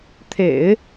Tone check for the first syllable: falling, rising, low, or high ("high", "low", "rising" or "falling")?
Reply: low